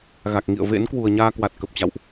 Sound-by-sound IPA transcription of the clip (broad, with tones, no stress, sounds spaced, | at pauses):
ɣ a˨˩ k̚ ŋ ḭ˧˨ ə̯ v ḛ˧˥ n k w u˨˩ ə̯ ɲ aː˧ k w a˨˩ t̚ k ə˨˩ p̚ t͡ɕ a̰˧˨ w ʔ